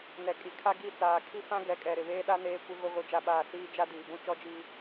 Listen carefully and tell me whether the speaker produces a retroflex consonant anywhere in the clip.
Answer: no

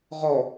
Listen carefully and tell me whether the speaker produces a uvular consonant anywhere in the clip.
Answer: yes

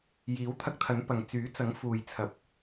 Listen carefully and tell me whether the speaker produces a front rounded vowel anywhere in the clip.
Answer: yes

